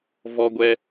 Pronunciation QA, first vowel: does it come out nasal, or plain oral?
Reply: oral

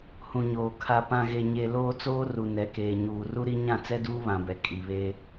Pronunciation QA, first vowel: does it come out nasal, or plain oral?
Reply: nasal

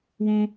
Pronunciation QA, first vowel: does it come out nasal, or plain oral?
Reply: nasal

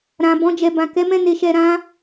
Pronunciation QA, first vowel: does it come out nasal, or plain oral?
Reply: nasal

